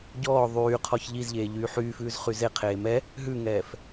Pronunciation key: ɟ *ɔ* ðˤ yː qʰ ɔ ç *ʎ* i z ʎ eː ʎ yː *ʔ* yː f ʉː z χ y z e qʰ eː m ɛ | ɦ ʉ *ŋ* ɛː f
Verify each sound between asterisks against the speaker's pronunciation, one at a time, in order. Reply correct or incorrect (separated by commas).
incorrect, correct, incorrect, correct